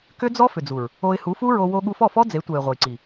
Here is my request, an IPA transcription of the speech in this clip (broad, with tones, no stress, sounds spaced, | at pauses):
k ʏ˦ d͡z ɔ˦ f ʏ˨ d͡z u˨ ɹ | o˧ ɪ̯ h u˨˦ f u˦ ɹ o˧ w o˧ ɠ u˧ f ɔ˦˨ f ɔ˦ d͡z e˨˦ tʷ ɛ˨ ɪ̯ ʁʷ ɐ˨ j ǀ i˨